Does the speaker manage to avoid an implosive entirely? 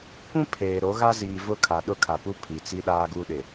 no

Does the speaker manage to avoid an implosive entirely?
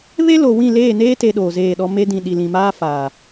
no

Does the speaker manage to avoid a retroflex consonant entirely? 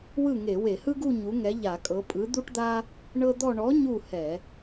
no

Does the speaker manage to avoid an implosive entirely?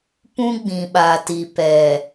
no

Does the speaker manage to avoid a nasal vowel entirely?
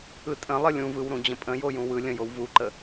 no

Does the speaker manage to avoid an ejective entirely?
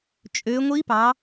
no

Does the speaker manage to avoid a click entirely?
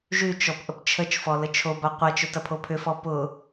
yes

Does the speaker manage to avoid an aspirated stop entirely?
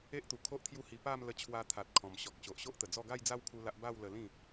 no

